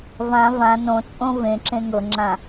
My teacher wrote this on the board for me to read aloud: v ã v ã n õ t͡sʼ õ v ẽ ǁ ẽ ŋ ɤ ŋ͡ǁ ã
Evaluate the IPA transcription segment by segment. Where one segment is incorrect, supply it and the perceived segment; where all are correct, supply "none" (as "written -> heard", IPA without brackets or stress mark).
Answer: none